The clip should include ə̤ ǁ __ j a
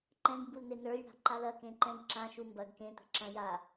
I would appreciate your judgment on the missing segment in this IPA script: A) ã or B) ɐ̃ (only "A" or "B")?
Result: B